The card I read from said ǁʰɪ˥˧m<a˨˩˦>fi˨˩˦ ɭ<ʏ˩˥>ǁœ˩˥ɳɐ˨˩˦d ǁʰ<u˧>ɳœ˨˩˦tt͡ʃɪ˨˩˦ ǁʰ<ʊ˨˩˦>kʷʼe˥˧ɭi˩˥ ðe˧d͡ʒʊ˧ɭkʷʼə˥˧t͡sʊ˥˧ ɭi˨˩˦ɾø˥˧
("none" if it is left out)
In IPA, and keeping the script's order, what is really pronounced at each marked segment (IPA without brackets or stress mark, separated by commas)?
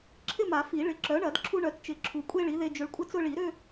a˨˩˦, ɪ˩˥, u˧, u˨˩˦